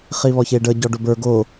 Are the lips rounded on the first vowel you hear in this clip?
no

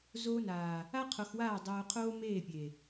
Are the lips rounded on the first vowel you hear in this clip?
yes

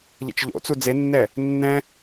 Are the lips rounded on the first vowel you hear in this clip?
no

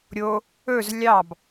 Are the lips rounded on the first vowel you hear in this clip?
yes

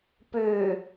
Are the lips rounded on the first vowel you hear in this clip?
yes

